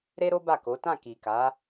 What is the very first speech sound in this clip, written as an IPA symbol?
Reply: ɾ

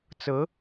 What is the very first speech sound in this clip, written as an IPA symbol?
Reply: t͡s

